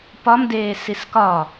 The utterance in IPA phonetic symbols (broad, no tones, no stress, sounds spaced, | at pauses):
p ɒ m d eː s i s k ɒ